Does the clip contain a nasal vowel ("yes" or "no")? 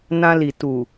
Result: yes